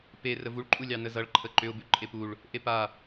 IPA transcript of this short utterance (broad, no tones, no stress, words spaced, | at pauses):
pe rəvuɭǃʼu lʲɑnəzʌɭ ǃʰəǃʏʊ̯bʉ ǃʼepuɭ | ʔepa